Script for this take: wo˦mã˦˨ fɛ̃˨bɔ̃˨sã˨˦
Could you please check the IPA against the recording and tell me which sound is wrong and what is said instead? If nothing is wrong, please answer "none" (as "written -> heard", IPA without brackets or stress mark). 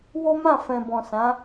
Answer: none